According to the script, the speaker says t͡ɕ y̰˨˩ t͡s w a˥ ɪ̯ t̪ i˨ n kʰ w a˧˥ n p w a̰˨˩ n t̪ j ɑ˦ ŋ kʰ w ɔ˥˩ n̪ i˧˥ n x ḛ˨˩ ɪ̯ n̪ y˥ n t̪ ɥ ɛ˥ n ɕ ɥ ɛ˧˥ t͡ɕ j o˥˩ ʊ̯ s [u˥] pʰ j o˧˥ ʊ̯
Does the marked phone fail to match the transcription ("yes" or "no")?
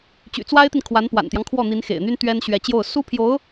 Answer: no